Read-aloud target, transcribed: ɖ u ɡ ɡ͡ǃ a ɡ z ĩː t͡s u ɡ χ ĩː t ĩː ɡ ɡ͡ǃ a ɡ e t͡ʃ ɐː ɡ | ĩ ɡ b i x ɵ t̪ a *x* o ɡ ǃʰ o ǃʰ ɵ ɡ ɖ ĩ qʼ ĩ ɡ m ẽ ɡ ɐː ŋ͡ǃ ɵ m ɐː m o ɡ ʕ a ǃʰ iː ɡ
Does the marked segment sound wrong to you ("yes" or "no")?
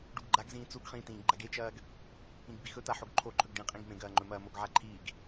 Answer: yes